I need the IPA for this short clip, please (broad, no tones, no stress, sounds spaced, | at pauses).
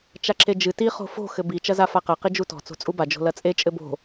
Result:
t͡ʃ a ǁ e d͡ʒ ɨ t i χ o̤ f o̤ x ɘ b i t͡ʃ ɐ z a f a q ɐ q i d͡ʒ u t ɔ̤ t͡s o̤ t͡sʼ u b a d͡ʒ o̤ l ɐ t͡sʼ e t͡ʃʼ ɘ b o̤